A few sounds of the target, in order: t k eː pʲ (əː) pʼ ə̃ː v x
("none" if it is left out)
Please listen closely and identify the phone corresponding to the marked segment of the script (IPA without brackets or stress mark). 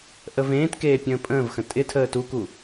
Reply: ə̃ː